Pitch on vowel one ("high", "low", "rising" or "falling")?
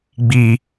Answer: low